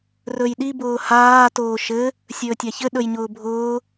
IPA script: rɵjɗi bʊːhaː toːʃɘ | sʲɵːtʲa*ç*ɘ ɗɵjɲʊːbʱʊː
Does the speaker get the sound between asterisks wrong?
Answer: no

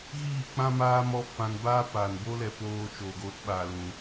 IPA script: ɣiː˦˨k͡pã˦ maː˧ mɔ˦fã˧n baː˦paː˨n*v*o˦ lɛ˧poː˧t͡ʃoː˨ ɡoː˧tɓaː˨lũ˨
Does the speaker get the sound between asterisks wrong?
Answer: yes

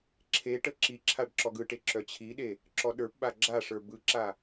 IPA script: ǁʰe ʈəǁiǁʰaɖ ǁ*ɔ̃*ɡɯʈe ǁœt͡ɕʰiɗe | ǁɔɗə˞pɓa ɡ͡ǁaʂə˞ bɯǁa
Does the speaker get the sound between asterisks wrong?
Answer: yes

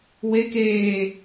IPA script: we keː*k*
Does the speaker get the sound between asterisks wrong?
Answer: yes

